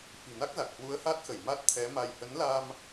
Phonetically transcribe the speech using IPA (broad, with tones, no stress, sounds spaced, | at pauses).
f i̤˨˩ n a˦˥ k̚ z a˨˩ k̚ h w u˨˦ ə̯ h a˦˥ t̚ x ə˧˩ j m a˦˥ t̚ t̪ʰ ɛ˨˦ m a˧ j h ə˨˦ n l a˧ m